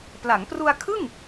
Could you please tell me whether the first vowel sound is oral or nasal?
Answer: oral